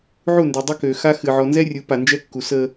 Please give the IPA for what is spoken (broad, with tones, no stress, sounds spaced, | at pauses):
ʕ u˦˨ n d ø˨ dˤ ə˦ k ø˨ x a˦ x ɨ˨ ʕ ɔ˨ n z ɛ˦ rʲ ɯ˨˦ p a˨ n d͡ʒ ɛ˦ kː u˨ s ə˦